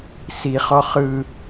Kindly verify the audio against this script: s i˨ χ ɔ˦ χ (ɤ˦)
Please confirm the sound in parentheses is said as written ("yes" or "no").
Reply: no